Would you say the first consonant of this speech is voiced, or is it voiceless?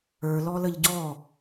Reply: voiced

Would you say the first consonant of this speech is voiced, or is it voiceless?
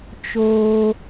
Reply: voiceless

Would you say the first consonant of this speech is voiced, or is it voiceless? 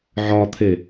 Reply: voiced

